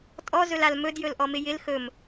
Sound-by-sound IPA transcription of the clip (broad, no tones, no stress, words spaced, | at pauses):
tʼɔzɵlal mɵdjɵlʔɔmɪ jɪl xɵm